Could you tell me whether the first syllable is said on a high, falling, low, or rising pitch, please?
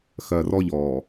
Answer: low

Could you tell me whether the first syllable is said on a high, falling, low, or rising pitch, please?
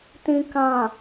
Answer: low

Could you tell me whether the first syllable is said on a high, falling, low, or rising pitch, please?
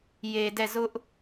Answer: low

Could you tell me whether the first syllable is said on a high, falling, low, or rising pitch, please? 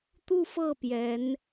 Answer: falling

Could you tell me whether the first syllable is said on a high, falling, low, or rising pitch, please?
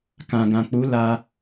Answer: low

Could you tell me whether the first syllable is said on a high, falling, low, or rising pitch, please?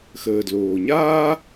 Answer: low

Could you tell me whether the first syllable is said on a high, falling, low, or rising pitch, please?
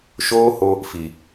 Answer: high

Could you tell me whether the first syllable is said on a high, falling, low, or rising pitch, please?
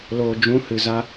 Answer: low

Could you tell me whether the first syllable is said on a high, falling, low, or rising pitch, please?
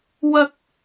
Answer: high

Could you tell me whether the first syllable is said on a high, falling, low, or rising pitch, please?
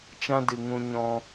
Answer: high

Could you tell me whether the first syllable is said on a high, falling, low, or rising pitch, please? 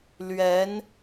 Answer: rising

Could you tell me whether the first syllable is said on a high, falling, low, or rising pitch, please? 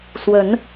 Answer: rising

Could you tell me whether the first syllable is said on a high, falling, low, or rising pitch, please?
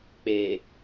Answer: low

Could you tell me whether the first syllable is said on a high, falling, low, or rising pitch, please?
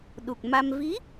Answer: low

